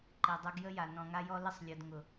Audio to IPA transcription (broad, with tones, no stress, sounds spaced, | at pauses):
ǃ e˨ dˤ œ˧ ɡ j ə˦ j a˨ n ɔ̃˨ ŋ a˧ j ɔ˧ l ə˧ sˤ lʲ ɔ˨ d ŋ ʊ˨